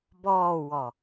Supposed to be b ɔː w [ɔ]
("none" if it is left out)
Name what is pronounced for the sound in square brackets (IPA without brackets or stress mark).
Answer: ɔ